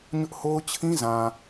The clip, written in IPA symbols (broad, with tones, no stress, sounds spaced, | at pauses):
ɲ ʊ˦ ʔ h o˦ ʊ̯ t͡ɕʰ ĩ˦ z ã˨